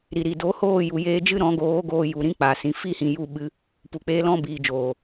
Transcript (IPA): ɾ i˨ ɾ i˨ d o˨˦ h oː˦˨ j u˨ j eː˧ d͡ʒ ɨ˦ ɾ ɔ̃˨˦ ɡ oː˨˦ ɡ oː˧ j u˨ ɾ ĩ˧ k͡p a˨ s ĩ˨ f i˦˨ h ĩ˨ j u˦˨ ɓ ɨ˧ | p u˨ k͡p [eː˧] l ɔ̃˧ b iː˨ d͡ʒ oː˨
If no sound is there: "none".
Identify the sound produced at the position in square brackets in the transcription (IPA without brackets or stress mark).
eː˧